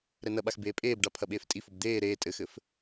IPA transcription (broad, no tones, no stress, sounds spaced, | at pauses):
ɾ ɛ n ɐ ɓ a x b eː pʼ eː b ɖ a pʰ ɐ ɓ eː f tʼ i f o b d̪ eː ɾ eː tʼ ɘ x ɘ f